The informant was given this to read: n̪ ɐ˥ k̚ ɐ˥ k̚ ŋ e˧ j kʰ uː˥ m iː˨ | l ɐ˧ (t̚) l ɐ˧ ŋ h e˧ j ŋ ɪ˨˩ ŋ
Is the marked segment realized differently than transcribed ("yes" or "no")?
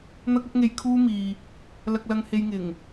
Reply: yes